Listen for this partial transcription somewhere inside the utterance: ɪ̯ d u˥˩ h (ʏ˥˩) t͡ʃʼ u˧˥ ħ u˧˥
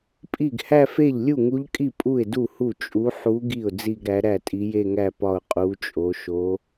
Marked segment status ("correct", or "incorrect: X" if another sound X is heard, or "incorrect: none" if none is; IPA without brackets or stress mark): incorrect: u˥˩